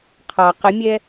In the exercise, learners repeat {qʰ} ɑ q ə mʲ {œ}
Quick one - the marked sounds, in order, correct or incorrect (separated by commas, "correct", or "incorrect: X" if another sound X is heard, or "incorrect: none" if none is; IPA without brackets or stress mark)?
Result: correct, incorrect: ɛ